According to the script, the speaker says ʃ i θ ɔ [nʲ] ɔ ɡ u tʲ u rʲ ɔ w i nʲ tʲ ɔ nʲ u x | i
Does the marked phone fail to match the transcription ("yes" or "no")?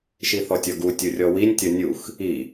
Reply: yes